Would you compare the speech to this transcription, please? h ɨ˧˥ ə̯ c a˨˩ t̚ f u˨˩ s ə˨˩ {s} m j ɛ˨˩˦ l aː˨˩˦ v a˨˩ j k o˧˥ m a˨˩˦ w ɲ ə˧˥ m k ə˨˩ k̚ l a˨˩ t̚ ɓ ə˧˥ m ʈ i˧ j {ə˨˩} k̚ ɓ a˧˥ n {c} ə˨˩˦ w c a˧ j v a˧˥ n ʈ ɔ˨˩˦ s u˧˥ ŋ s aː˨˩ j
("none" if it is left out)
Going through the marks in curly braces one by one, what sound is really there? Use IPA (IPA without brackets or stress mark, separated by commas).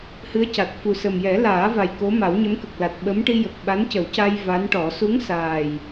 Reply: none, ə˨˩, c